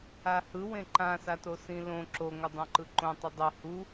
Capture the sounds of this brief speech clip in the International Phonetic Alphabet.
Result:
ahɯ wẽǃãsato sĩlõ ǁoŋʷʌdˤõ ǃɯǃõ tˤudˤo hu

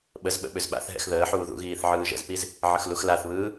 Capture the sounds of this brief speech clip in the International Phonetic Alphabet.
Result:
ɓəzɓə̰ ɓʏzɓa̰θɦɛ̰x ðəːħuː ðṵɣiːθ ʕɯːʒə̰zpiz | ʕəxluxlaθβɯː

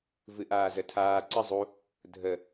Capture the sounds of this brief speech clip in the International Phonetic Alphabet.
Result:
vɨʔaːzətʰaː ǀə zˤu | dʱə

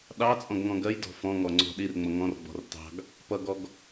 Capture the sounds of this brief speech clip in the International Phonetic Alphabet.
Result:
ɗɑt͡sʼɔ̃ɡ ŋɔ̃ɡɜjdɔ̤ fɔ̃ ŋɔŋ͡ǀɔ̤ɗirŋ͡mʌ ŋɔ̃rɡ͡bɔ̤r tɑ̤ɡ | pʌɡɔɡ

